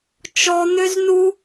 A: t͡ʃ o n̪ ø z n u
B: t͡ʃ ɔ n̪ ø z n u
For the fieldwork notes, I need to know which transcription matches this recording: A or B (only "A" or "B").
B